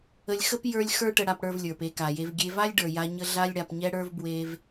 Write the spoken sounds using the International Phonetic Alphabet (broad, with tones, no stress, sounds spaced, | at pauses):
ə˧ lʲ x ə˥ p j ə˞˧ lʲ x ə˞˥ ʈ ə˧ ɽ a˧ p ɽ ə˞˧ v lʲ ə˞˩ p e˧ k a˩ j e˧ v ɡʲ e˧ v a˥ lʲ ɖ ə˞˩ j a˧ ɲ ə˧ ɮ a˥ lʲ ɽ a˧ p ɲ ɛ˥ ɽ ə˞˥ v b w e˧ v